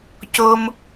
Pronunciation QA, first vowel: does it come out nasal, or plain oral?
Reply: oral